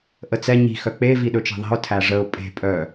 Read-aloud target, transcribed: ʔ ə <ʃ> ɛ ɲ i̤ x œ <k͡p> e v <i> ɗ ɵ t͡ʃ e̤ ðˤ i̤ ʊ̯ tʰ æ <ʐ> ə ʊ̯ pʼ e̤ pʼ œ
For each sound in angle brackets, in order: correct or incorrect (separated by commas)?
incorrect, correct, correct, correct